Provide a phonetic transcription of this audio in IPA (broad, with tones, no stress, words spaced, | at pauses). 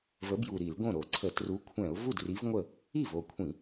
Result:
və˨˥bju˨˩ ɾi˧˩˧lɡõ˥˩ɾo˧˩˧ǀʰə˧˩˧ tru˨˥kʷʰɛ̃˧˩˧ʊ̯ vu˥˩dri˨˥vŋʷə˥˩ | i˥˩vo˨˩kʷʰĩ˧˩˧